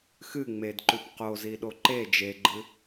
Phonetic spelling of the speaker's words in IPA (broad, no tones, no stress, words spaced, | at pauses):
xɨ ŋ͡medǃʉp qoziɗo ǃe d͡ʒeɡ͡ǃɨ